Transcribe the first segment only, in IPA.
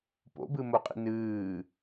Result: p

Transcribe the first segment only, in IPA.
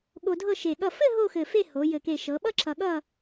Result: ɠ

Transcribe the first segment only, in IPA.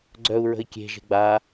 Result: ɡ͡ǀ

